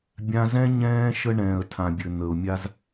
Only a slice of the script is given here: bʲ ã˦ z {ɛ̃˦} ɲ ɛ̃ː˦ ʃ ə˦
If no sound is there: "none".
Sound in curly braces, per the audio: ɛ̃˦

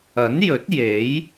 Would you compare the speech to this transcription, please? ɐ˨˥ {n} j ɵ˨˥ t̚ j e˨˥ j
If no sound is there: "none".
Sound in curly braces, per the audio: n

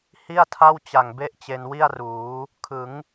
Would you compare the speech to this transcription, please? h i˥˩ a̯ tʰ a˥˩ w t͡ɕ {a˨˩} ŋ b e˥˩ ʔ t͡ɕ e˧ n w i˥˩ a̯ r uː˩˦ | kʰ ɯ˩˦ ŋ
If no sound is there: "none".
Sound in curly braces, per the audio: a˨˩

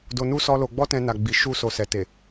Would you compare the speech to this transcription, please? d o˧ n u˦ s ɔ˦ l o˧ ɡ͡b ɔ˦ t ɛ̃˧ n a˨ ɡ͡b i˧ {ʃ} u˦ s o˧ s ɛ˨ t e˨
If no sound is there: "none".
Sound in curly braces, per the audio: ʃ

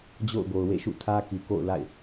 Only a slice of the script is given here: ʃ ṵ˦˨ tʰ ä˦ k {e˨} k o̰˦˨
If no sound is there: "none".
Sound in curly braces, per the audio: i˨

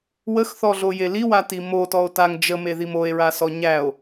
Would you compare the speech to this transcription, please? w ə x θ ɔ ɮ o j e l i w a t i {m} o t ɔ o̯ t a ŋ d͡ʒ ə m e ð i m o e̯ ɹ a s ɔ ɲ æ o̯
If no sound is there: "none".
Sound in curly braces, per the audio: m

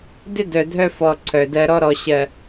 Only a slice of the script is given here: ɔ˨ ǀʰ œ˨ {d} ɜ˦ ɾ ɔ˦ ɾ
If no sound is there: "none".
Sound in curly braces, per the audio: d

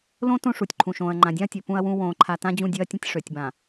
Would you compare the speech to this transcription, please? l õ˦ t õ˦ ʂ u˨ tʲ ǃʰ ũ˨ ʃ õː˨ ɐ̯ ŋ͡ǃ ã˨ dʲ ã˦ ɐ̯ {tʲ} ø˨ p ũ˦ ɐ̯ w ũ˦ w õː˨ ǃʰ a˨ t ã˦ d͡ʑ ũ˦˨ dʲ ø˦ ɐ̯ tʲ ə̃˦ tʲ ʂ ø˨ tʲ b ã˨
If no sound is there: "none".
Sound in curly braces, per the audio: tʲ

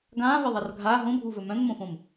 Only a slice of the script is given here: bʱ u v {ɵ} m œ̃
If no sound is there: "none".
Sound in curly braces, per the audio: ɵ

